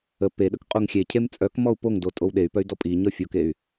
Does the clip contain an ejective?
yes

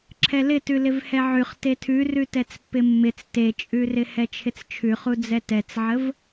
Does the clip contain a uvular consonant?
yes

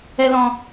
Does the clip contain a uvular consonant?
no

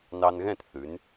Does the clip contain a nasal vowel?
yes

